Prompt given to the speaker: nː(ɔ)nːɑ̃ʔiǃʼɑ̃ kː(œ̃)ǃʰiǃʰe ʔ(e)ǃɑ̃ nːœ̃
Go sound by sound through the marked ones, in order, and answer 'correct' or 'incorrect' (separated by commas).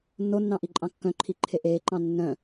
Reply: incorrect, correct, incorrect